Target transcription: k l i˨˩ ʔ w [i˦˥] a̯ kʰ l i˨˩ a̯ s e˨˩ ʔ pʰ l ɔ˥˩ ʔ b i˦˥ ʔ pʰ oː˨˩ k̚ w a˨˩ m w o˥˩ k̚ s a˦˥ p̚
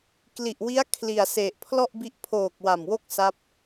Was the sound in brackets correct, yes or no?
yes